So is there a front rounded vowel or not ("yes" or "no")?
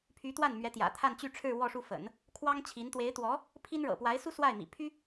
yes